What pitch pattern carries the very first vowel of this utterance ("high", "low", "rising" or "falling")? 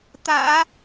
low